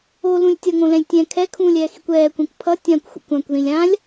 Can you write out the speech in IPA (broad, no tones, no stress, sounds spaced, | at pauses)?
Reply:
o l ũ lʲ tʲ ʌ ŋ õ l ɛ̃ lʲ tʲ ɛ̃ kʰ ɛ kʰ ũː lʲ ɛː x i kʷ ɛː kʷ ɛ̃ kʷ pʰ ʌ tʲ ã kʷ xʷ ḛ kʷ ã kʷ ð ĩ lʲ ã lʲ